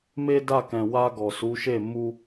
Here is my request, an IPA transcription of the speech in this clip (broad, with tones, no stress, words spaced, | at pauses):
me˦da˦˨kɛ̃˨ wa˧ɡɔ˨su˨˦ ʃe˦˨ mu˧